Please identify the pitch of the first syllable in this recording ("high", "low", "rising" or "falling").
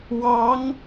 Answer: rising